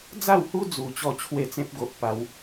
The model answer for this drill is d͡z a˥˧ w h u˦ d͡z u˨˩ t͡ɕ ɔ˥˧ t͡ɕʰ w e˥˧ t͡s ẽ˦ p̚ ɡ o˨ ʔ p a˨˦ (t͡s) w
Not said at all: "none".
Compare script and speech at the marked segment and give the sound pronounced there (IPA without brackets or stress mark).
none